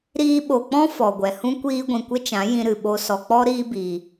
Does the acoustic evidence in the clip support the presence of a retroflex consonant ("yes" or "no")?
no